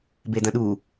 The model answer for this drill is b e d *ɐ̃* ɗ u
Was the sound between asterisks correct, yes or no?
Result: yes